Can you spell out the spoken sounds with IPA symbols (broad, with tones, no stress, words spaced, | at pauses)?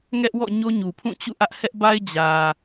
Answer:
ŋɛ˦ʔwɔ̰˦˨ ɲo˦ɲu˨pʰũ˦˨ t͡ɕṵ˦˨ʔä˦ʔ hɛ˦ʔba˦ɪ̯ d͡ʑä˨